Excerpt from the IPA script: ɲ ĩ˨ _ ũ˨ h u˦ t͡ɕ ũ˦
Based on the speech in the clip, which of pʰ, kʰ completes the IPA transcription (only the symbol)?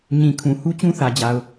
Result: kʰ